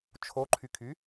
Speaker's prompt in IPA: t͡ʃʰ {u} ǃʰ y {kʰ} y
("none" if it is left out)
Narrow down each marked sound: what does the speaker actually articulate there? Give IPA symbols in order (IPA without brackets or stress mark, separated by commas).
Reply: o, kʰ